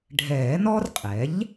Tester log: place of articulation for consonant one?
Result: retroflex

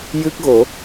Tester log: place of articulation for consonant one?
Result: palatal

